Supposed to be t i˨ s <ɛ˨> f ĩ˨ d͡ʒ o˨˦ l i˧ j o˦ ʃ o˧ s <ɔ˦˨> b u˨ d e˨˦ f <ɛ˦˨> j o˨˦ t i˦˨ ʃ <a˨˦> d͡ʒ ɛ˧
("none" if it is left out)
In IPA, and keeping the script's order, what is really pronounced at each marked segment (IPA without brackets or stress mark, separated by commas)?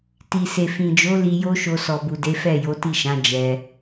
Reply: e˨, ɔ˨, ɛ˦˨, ã˨˦